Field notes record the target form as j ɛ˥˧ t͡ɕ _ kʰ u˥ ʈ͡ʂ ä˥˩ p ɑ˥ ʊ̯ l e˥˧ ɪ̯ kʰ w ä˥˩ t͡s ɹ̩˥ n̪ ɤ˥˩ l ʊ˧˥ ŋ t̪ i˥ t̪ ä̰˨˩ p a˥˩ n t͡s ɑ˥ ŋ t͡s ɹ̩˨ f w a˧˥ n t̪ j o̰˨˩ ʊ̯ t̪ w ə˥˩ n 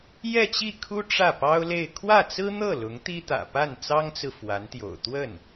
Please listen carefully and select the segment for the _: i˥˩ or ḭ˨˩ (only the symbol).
i˥˩